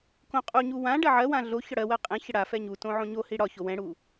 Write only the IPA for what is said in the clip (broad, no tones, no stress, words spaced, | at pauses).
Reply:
kõqʼuɲu wã ɖɜʕɜwã ɮo çɒɽɜwɜ qʼɛ̃çə ɽafɛ ɲutõ ʕõɲohi ɽɒço wɛ̃ɽu